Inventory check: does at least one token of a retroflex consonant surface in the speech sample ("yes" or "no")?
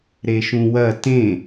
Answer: no